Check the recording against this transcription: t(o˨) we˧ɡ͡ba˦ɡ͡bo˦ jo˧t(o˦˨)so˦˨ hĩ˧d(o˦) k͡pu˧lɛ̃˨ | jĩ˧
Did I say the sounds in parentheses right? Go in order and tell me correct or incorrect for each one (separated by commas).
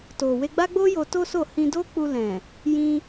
correct, incorrect, correct